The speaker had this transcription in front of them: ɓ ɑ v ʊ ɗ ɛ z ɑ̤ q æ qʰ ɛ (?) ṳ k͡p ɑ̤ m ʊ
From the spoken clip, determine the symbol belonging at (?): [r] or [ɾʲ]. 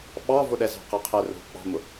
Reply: r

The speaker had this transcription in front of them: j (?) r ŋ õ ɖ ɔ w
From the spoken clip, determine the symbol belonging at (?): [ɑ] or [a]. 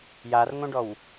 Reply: a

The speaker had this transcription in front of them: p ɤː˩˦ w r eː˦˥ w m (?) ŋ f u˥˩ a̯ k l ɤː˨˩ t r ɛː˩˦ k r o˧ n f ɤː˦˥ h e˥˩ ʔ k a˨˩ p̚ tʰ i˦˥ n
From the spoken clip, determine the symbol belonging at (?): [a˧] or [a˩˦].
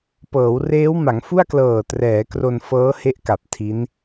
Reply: a˩˦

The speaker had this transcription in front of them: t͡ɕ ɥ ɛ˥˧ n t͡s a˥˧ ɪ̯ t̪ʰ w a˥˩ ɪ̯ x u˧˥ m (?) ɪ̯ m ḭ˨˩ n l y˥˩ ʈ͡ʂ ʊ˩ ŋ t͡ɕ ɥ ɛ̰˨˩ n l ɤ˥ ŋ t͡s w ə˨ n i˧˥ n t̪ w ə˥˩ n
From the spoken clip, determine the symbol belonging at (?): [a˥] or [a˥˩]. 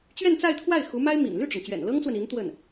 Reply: a˥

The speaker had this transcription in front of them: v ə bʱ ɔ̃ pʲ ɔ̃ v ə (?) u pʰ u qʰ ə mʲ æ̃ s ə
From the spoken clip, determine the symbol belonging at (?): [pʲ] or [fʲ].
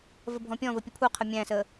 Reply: pʲ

